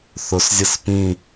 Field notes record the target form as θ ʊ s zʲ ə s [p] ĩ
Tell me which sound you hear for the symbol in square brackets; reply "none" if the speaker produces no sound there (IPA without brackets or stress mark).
p